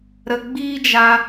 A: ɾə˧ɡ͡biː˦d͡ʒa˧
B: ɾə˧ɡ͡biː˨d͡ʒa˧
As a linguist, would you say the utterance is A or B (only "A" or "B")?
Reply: A